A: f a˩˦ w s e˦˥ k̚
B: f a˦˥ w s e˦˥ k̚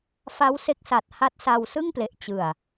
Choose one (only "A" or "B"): B